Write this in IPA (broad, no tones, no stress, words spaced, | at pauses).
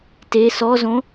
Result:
te sɔzõ